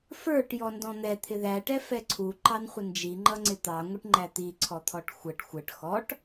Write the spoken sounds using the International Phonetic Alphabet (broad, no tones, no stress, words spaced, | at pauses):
fə˞ʈ jɔndɔ̃n̪ɛ t̪ʰɪðæʈɛ fɛǀʰu ǃɑnχʷənd͡ʒi ŋ͡ǃʌŋ͡ǀɪt̪ɑŋʷɪʈ ŋ͡ǃæt̪i ǀʰɔt̪ʰɔʈxʷəʈ xʷəʈ xɔʈ